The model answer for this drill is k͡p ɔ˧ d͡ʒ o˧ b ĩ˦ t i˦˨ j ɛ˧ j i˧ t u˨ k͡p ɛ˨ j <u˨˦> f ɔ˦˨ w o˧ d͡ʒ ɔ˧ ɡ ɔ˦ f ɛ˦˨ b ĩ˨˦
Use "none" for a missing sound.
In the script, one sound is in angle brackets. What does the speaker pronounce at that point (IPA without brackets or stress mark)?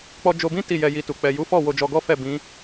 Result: u˨˦